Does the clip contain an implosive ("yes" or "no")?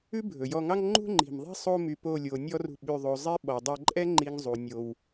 yes